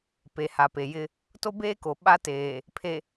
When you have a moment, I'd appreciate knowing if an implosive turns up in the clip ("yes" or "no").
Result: yes